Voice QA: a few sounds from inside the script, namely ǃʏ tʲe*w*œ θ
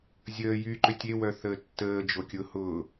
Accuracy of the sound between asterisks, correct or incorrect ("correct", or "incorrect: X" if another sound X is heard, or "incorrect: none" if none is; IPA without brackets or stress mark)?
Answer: correct